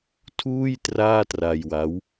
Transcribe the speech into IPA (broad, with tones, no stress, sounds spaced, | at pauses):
tʰ uː˥˩ j t r aː˥˩ t r a˧ j w a˦˥ w